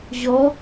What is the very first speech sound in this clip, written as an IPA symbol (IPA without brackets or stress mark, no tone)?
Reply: ʑ